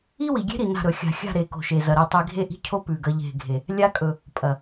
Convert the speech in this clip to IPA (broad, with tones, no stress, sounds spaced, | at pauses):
i˦ w i˨ ɡʲ e̤˦ ɾ i˨ n a̤˦˨ ɾ ɵ˨ xʲ a̤˨ xʲ a̤˦˨ ɾ e˨ k o̤˨ ʃ e˨ z ɐ˨ ɾ e˦ tˤ i˦ ɡʱ e˦ ʔ i̤˦ cʰ o˦ p ʉ˨ ɡ ɐ˦ ʎ e̤˦˨ ɡʱ e˨ | lʲ a˦ kʼ ɵ˨ | pʼ ɐ˨